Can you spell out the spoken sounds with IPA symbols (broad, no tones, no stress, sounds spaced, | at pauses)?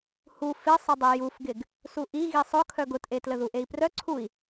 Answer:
h u f ɪ sˤ ə dˤ e j u f ɡ ɪ ɡ | s u ʔ i ɣ i sˤ ʊ kʰ œ ɡ ʊ t ʔ e t l ə ð u ʔ e i̯ p r œ ǀʰ u i̯